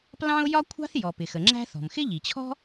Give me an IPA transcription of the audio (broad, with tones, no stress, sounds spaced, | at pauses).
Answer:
p l ɑ̃˥ ʊ̯ j ɒ˥ kʷʰ ɑ̤˥ θ j ɔ˩ p ɪ˩ x ə˩ ŋ͡ǁ æ̤˥ θ ɔ̤˩ m x ɪ˥ ʎ i˩ t͡ɕʰ ɔ̤˥